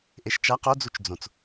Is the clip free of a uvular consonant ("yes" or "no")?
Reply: no